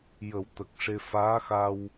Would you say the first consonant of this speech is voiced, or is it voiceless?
voiced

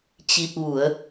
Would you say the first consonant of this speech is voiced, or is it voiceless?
voiceless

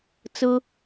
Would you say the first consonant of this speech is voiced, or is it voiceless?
voiceless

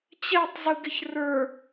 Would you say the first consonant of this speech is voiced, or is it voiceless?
voiceless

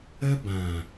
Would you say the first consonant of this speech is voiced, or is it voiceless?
voiced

